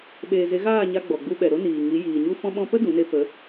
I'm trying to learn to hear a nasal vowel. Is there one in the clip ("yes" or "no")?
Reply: yes